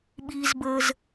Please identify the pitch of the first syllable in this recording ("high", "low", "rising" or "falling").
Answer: low